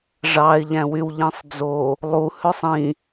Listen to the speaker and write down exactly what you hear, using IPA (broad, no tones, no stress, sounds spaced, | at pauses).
ʐ ɑ ɪ̯ ʎ æ̃ w y w ʎ ĩ sˤ d͡z o | lˠ u h ø sˤ ĩ